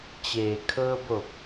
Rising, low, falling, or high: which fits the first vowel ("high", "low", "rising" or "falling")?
low